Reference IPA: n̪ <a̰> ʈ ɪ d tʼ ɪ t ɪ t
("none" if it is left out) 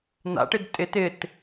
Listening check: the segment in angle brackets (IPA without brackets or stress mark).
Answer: a̰